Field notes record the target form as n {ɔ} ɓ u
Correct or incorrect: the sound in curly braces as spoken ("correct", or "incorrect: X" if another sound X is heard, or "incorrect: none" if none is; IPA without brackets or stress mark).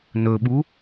incorrect: ɵ